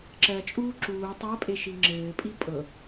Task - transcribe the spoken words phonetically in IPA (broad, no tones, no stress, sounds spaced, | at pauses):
ǁ ɜ t͡ʃʼ uː ǁ uː tˤ ɜ pʼ e ʃ i ŋ͡ǁ ɘː pʼ i pʼ ɤ